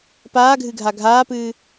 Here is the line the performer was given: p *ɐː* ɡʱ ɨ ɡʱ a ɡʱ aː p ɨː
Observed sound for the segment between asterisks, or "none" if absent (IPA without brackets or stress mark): aː